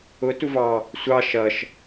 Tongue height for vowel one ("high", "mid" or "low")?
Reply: high